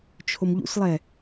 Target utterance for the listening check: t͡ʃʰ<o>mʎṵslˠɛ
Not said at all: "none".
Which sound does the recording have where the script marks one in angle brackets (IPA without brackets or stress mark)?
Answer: o